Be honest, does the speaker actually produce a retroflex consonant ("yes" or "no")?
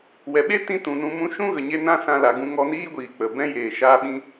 no